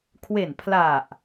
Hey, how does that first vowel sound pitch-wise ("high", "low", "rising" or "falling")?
low